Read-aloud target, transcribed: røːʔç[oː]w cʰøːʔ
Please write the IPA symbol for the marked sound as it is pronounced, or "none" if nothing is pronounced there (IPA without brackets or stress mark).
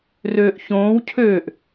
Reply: õː